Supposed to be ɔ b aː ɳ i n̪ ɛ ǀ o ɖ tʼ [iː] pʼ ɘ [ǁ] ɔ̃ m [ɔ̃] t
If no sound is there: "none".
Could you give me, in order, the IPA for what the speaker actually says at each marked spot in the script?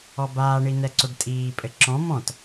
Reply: iː, ǁ, ɔ̃

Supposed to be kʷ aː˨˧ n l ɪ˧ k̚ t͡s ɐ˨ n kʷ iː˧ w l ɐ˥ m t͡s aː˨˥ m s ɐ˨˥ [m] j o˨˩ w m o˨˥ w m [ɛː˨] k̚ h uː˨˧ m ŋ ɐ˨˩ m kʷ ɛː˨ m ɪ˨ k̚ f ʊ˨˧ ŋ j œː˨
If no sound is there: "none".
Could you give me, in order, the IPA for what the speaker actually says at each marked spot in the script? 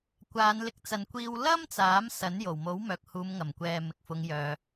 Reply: n, œː˨

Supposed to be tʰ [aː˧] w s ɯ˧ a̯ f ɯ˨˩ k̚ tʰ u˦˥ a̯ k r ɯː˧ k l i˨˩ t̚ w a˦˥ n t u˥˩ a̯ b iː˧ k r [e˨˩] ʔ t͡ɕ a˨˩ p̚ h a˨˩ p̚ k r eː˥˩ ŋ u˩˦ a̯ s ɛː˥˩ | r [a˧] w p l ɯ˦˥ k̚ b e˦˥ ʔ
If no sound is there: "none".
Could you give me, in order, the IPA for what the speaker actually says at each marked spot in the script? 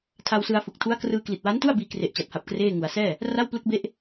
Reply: a˧, e˨˩, a˥˩

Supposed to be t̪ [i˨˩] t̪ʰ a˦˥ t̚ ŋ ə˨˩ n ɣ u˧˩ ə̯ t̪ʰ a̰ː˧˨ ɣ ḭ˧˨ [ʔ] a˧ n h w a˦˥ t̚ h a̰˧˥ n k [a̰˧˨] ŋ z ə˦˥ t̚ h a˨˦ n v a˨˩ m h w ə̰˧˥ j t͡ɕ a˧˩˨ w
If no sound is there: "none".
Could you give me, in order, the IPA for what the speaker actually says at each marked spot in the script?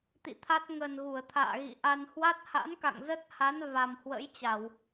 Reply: ḭ˧˨, ʔ, a̰˧˨

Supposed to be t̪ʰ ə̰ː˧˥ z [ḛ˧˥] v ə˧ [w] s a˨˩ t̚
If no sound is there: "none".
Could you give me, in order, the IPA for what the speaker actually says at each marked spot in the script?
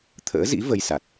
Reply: ḭ˧˥, j

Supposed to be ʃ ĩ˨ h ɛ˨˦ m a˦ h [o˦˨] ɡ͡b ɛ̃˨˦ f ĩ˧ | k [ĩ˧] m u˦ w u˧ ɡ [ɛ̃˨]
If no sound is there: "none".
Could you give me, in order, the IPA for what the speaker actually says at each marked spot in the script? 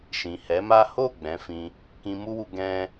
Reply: o˦˨, ĩ˧, ɛ̃˦

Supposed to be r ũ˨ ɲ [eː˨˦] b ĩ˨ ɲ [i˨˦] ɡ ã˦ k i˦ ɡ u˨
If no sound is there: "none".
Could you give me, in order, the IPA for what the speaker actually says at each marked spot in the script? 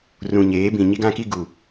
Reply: eː˨˦, i˦

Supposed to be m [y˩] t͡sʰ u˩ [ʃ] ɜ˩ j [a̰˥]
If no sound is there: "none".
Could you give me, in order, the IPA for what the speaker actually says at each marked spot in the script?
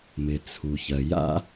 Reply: ɪ˩, ç, a̰˥

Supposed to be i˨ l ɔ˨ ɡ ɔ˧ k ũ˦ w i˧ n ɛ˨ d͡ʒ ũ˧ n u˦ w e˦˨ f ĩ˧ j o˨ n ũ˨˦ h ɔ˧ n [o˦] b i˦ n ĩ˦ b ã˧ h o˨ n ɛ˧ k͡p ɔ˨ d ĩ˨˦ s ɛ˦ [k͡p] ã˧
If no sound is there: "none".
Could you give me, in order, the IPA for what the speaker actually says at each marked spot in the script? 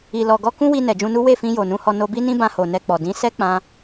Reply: o˧, k͡p

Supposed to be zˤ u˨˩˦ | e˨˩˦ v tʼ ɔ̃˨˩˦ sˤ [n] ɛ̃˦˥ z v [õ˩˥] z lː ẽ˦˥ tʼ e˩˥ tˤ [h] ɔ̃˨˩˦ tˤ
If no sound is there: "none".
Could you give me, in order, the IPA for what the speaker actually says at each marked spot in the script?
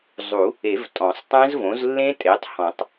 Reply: tˤ, õ˩˥, h

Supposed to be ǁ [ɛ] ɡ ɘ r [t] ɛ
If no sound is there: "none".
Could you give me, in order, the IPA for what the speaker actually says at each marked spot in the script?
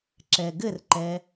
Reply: ɛ, ǃ

